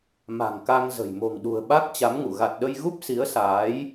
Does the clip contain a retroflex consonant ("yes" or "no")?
no